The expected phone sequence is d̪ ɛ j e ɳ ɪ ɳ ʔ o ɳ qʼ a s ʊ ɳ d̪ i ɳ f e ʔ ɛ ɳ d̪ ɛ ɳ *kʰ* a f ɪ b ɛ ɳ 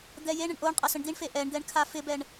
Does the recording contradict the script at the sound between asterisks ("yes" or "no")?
no